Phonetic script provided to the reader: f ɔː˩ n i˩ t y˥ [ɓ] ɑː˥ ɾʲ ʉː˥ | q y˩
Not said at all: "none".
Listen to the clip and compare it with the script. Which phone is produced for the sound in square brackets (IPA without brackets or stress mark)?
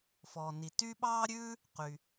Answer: ɓ